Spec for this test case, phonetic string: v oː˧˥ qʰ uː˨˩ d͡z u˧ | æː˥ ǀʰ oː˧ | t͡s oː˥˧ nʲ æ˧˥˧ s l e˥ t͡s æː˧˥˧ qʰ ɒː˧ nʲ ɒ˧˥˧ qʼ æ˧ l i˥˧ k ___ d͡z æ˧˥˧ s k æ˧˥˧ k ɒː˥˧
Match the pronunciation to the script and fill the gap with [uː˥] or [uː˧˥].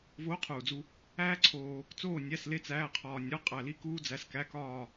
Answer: uː˥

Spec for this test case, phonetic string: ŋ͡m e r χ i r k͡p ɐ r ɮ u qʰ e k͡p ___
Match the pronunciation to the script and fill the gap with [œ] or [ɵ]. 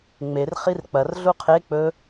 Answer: ɵ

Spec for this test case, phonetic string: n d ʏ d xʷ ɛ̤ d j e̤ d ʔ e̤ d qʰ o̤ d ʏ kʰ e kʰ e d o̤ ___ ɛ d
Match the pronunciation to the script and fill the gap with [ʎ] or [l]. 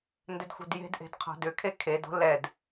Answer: l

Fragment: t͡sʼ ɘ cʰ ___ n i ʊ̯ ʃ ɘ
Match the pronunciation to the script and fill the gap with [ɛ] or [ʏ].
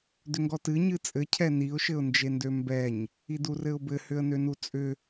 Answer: ɛ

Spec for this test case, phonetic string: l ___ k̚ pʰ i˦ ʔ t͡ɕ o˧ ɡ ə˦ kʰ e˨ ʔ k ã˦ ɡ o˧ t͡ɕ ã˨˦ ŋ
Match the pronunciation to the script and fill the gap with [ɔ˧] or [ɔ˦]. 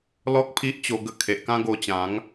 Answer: ɔ˦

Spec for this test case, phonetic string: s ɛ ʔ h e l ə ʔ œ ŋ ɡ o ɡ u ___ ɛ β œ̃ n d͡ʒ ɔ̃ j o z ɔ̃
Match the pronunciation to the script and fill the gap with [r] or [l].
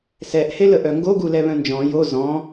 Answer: l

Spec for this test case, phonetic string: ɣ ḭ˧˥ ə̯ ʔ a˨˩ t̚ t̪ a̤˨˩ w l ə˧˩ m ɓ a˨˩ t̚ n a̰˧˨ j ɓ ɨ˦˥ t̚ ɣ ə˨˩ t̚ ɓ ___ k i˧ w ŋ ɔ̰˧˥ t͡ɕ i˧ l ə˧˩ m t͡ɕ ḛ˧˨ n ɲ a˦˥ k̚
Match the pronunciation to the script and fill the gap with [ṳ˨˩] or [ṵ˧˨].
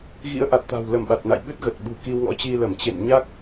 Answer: ṳ˨˩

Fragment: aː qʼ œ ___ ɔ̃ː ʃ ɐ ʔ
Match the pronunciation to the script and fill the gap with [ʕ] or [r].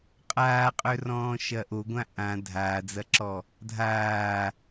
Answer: r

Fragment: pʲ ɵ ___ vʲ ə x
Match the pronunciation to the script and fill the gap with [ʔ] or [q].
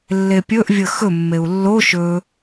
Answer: ʔ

